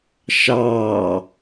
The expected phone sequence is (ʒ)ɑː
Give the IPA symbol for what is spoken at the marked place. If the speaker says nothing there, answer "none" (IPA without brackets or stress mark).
ʃ